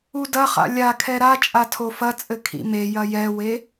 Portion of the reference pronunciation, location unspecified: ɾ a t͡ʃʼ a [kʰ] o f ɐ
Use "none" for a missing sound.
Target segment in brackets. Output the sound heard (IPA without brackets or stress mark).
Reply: tʰ